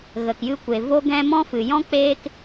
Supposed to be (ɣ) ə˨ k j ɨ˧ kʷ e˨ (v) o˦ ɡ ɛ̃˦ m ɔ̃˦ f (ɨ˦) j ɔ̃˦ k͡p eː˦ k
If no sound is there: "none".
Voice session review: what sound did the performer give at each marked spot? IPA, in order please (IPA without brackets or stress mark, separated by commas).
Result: ɣ, v, ɨ˨